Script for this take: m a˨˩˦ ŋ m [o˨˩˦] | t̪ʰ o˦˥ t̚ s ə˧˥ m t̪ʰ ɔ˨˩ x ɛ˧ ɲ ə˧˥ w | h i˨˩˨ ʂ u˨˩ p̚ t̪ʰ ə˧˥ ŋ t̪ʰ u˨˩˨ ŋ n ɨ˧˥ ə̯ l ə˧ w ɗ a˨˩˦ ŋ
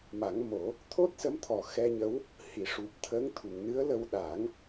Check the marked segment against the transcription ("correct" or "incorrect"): correct